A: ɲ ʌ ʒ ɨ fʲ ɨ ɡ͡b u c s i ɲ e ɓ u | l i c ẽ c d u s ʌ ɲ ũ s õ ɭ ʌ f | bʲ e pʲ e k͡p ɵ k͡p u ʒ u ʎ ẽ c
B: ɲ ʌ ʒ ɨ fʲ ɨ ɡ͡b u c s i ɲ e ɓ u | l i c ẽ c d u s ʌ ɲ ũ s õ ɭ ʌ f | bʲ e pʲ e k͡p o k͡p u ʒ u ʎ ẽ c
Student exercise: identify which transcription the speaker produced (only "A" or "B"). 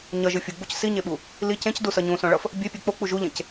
B